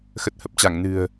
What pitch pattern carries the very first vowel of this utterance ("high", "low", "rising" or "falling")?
low